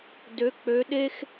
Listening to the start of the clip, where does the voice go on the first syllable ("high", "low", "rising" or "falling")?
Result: rising